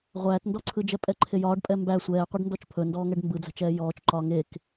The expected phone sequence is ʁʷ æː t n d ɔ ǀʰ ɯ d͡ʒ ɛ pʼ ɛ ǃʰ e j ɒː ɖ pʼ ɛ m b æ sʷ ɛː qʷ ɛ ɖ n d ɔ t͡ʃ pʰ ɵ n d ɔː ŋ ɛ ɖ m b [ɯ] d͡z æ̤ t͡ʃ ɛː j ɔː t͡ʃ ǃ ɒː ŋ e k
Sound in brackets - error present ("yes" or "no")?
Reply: no